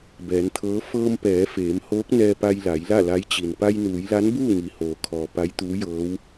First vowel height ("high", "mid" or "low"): mid